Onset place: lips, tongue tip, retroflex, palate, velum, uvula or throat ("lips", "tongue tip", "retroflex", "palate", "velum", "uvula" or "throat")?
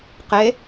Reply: uvula